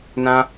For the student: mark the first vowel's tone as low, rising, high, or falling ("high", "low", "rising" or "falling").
high